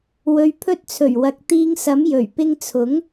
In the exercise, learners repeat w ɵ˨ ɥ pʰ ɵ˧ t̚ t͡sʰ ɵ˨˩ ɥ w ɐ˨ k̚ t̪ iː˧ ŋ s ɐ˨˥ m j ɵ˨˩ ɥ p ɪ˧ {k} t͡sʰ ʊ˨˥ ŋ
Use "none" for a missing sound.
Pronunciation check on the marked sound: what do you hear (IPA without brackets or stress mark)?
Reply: ŋ